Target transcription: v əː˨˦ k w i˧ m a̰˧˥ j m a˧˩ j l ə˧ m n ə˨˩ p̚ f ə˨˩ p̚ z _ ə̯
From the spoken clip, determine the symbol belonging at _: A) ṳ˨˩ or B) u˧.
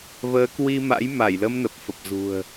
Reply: A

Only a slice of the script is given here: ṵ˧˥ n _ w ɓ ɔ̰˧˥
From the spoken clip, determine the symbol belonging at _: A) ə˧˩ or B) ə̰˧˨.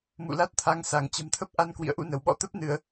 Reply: A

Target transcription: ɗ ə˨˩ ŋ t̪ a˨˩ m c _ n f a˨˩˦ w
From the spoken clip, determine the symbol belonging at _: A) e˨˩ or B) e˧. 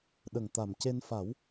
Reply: B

